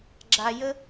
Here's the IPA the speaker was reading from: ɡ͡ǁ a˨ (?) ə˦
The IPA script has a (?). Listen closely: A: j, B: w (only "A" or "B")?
A